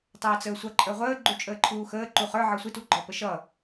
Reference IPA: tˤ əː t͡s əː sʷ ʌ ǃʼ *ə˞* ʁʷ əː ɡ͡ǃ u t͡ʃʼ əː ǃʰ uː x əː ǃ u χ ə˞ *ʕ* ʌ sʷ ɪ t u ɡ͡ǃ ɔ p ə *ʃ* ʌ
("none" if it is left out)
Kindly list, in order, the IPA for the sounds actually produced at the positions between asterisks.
ə˞, ʕ, ʃ

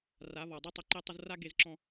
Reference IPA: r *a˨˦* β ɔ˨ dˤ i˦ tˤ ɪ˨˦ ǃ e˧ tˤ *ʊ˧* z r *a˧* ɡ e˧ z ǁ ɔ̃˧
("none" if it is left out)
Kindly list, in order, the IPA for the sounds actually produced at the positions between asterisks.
a˨˦, ʊ˧, a˦

